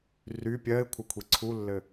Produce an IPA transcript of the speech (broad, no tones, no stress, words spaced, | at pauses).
ry pʲɜɪ̯kʷʰə kʷʰiǀʰulːɘ